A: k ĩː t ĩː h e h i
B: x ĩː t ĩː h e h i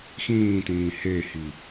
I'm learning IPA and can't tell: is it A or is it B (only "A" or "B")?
B